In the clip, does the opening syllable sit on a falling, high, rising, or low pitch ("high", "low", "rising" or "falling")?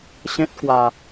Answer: high